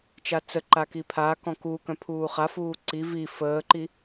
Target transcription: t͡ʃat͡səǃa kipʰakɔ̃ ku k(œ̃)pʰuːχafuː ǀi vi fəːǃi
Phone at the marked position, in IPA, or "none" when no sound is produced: œ̃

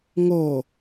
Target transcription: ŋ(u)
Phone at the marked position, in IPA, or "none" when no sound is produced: o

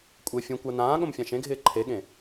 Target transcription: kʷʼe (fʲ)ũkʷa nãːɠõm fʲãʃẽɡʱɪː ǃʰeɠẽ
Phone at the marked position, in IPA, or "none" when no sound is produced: fʲ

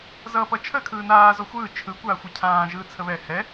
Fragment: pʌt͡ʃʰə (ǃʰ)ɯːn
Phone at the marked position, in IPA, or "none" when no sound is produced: kʰ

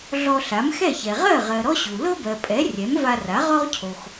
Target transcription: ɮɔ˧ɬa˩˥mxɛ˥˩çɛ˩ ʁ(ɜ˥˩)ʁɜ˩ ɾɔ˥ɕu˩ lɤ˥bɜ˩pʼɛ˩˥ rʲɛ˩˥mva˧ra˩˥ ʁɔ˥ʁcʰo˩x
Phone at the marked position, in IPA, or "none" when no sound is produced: ɜ˥˩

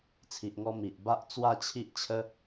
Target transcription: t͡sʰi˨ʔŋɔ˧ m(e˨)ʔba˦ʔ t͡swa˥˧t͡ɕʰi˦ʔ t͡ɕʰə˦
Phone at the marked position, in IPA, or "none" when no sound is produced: i˨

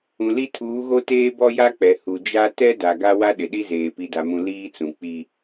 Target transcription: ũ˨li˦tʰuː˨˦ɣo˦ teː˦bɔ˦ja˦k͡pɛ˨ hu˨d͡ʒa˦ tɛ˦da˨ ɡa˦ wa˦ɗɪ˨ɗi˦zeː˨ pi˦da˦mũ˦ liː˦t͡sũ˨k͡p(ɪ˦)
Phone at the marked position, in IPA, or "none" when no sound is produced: i˦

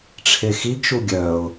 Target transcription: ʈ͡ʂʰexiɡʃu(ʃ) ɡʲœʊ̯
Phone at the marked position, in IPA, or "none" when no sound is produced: none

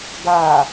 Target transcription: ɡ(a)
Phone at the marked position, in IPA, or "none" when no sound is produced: a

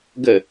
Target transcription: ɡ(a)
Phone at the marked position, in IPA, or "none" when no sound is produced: ə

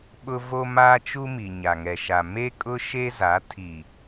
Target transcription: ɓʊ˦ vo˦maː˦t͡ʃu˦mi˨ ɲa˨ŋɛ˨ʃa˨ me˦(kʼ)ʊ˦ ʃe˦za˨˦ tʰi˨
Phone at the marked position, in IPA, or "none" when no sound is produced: kʼ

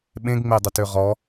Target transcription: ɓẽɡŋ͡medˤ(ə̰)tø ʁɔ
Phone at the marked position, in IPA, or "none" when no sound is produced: ə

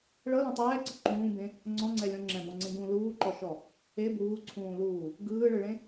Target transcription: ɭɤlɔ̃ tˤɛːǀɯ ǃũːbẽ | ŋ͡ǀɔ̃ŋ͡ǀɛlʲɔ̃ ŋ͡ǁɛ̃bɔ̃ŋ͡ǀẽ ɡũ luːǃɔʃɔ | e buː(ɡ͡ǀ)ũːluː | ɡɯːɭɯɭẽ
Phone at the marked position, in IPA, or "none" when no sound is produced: ǀʰ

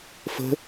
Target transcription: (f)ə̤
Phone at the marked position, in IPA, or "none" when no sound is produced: f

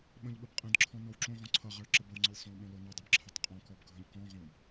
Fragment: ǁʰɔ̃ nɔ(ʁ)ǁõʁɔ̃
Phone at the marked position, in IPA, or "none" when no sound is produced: w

